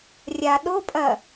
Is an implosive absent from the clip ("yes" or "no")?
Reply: no